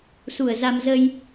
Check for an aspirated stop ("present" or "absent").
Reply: absent